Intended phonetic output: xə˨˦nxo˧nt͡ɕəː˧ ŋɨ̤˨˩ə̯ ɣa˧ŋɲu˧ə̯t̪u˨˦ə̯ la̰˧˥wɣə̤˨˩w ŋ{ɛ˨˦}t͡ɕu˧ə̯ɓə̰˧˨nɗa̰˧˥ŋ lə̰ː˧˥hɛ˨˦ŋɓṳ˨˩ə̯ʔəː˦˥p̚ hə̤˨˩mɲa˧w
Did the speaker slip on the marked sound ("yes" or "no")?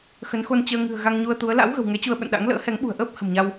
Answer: no